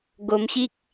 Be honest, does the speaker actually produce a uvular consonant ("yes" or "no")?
no